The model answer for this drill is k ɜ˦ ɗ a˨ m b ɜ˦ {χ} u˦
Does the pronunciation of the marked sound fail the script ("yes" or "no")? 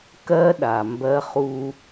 no